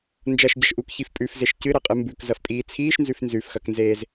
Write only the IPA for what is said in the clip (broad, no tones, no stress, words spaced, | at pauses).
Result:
nd͡ʒɐʃɟɐʃ ʔukçif pʼʉfzeʃ cɨɾɐqʼɨ mbʉkzɐfpʼiː t͡sʰiːʃnzʉf nzʉfxɐknzeːz